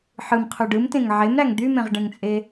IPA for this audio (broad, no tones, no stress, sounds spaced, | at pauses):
ħ ɯ m qʰ y ɖ ɯ m t ẽ ŋ ʕ e m ɾ æ ŋ d̪ y m ẽ ʁ ɖ ẽ ŋ t͡sʼ e